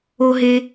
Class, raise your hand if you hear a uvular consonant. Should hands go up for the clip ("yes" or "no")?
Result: no